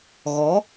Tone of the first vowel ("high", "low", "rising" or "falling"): rising